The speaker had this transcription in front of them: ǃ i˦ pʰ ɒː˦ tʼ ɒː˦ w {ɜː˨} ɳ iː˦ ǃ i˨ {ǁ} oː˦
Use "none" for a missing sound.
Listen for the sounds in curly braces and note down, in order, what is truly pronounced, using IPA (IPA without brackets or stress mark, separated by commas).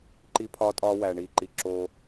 æː˨, ǁ